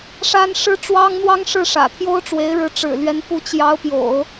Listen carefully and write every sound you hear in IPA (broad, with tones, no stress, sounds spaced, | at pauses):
ʂ a˥ n ʂ ɻ̩˥ ʈ͡ʂ w ɑ˥ ŋ n̪ w ɑ˥ ŋ ʂ ɻ̩˥˩ ʂ ä̰˨˩ t̪ʰ j o˥ ʊ̯ ʈ͡ʂ w e˧˥ ɪ̯ ɻ ɻ̩˧˥ ʈ͡ʂ ɻ̩˨˩ l ɥ ɛ˧˥ n p u˧˥ t͡ɕ j ɑ˧˥ ʊ̯ p j o̰˨˩˦ ʊ̯